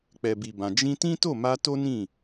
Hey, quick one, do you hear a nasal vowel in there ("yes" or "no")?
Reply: yes